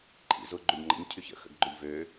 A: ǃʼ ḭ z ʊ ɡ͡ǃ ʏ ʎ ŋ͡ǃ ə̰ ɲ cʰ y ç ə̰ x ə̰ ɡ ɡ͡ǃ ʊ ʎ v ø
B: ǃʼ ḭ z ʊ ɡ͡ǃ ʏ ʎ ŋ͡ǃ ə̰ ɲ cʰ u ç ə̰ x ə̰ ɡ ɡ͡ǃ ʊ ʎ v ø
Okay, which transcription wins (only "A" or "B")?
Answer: A